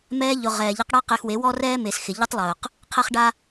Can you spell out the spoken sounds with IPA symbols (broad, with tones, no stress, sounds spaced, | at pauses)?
m ɛː˧ ʎ ʊ˨ ʁ ɛː˨ ʎ ɛ˧ q ɽ a˧ q ɪː˧ x w e˨˦ w ɔ˦ r ɛː˦ m e˨ s x ɪ˨ ʎ ʊ˦ tˤ lˠ ʊː˨ q | qʰ ɛ˧ χ ɖ a˧